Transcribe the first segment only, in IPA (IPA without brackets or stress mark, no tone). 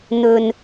n̪